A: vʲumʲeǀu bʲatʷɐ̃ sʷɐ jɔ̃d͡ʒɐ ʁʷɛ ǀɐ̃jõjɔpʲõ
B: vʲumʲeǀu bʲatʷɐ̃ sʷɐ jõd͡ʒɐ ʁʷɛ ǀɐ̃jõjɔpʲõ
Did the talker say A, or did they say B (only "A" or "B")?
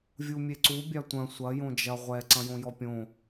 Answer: B